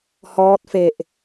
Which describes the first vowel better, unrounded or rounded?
rounded